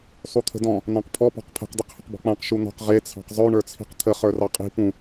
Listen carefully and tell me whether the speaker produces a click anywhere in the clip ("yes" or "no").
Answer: no